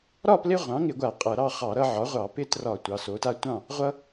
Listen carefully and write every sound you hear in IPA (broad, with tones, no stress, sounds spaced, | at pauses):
ɾ ɒ˥˨ p l ɪ˦ ʁʷ ɑ̃˩˥ ŋ ɪ˧˩˧ ɡʷ a˧˩˧ qʼ ʌ˧˩˧ ɾ ɑ˥˨ χ ɑ˧˩˧ ɾ ʌ˦ ʕ ɒ˩˥ ʁʷ ɑ˧˩˧ p ɪ˦ t r ɒ˧˩˧ tʷ ɑ˩˧˩ s o˩˥ t a˦ tʷ ɑ̃˥˨ | ʁʷ ʌ˦